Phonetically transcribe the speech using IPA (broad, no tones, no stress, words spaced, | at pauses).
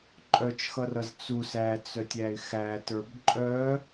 ǃʼœt͡ʃxʌrʌz t͡sus æt͡sœtʲæɪ̯ xætə˞b ǃʼœ